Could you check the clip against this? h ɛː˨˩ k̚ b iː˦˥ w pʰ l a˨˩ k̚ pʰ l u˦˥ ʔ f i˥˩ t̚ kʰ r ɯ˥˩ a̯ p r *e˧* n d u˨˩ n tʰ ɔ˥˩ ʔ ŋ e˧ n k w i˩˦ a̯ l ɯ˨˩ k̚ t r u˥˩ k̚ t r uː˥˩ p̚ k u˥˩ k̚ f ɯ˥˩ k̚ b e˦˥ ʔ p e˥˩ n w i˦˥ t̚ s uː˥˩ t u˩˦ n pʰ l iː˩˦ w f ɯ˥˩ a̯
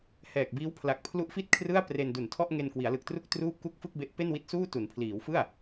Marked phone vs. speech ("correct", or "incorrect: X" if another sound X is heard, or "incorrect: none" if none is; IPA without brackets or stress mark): correct